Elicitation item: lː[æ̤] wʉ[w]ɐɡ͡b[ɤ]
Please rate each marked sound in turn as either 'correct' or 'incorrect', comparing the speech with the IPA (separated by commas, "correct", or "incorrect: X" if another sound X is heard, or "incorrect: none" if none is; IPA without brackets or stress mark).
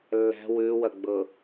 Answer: correct, correct, correct